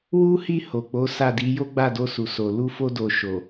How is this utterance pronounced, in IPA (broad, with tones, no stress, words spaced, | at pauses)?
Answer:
wu˦hi˦˨ ho˨k͡po˨˦ sa˦˨di˨˦ jo˦ɡ͡ba˦˨do˧ su˨so˨ lu˧fo˧do˨ ʃo˨